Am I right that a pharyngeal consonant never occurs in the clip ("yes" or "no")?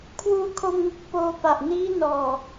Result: yes